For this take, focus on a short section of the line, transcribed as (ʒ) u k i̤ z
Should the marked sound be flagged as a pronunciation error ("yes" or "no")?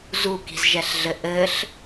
yes